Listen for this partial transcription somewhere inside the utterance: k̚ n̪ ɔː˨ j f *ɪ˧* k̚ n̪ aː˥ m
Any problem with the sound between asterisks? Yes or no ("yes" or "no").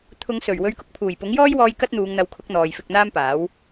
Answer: no